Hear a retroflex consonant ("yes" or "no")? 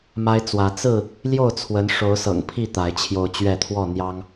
yes